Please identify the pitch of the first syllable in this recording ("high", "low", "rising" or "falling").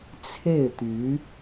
falling